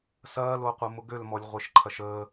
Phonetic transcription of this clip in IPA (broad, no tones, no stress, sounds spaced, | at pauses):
s ɐː l o qʷ ɐ m ʊ ɡ ø l m ɔ lʲ ʁʷ e ʃ ǃʰ ɐ ʃ əː